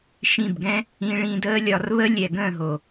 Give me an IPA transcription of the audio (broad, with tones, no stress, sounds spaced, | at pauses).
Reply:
ʃ ĩ˦˨ b ɡ ɛ̃˦ | ĩ˧ ɭ ĩ˧ d əː˦ lʲ ɒ˧ r β ə˦ lʲ ɛ˨ ɡ ə̃ː˦˨ ɦ o˨